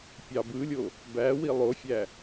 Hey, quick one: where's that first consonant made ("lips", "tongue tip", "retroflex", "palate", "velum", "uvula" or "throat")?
lips